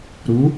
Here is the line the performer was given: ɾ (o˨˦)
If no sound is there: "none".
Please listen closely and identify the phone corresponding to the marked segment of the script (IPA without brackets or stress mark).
u˨˦